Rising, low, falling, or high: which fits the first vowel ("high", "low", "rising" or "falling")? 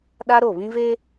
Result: high